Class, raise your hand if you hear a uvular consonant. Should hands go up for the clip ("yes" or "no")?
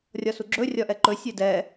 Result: no